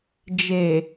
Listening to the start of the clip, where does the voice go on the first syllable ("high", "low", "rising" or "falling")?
low